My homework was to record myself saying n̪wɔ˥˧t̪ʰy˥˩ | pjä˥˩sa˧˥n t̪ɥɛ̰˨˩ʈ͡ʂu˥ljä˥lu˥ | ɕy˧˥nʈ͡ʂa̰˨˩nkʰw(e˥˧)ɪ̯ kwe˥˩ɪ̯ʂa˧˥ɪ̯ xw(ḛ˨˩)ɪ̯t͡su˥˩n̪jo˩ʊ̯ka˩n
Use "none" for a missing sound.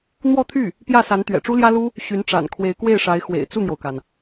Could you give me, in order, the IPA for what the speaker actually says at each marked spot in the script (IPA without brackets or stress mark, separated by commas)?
e˧˥, ḛ˨˩